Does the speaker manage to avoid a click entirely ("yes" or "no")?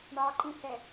no